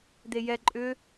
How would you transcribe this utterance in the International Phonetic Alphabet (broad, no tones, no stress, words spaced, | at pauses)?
d̪ejɛ ǃʼʏ